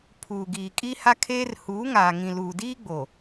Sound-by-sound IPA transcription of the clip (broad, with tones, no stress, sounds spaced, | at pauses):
pʰ uː˨ ɡ iː˨ kʼ i˦ h a˦ kʰ eː˦ r h uː˨˦ ŋ aː˨ ŋ ĩ˨ l uː˨ d iː˦ ɡ͡b o˨